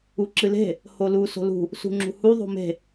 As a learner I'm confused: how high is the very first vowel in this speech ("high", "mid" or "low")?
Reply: high